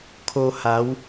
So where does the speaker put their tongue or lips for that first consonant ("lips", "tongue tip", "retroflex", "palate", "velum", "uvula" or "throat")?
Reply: velum